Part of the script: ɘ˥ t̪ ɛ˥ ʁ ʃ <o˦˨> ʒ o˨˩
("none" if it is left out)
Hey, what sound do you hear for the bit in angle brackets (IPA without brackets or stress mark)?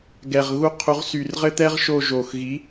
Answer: o˦˨